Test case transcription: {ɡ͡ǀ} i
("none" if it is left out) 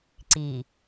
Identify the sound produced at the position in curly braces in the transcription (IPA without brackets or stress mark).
ǀ